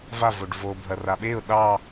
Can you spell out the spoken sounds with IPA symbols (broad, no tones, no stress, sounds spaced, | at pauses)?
v a v o ɖ v o bʱ ɐ r a ɓ e ʊ̯ ɗ ɑ